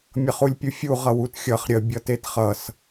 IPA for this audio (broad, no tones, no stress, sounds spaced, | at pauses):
mʲ ʌ χ u lʲ pʲ u fʲ u ʁ ʌ w u t xʲ ʌ χ ɾʲ ə bʲ ʌ t e t χ ʌ s